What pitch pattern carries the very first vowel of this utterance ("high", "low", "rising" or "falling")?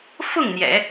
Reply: falling